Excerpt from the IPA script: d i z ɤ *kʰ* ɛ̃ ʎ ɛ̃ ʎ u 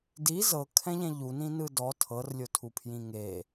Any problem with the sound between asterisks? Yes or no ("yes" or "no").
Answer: no